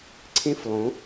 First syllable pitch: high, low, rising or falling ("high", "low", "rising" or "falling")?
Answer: high